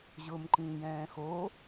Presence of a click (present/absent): present